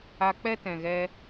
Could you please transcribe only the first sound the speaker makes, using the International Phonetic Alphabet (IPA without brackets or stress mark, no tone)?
a